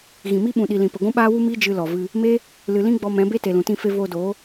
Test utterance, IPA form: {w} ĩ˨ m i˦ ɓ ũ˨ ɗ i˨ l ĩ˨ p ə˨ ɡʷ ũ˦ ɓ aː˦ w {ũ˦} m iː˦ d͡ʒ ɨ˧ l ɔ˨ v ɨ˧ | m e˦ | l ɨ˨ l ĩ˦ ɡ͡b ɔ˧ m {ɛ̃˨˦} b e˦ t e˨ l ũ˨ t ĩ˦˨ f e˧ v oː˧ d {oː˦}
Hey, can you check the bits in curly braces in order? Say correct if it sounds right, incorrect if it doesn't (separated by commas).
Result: incorrect, incorrect, correct, incorrect